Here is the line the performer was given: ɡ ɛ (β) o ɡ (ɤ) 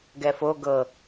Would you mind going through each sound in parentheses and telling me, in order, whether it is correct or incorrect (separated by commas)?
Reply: incorrect, correct